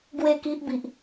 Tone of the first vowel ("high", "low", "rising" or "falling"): falling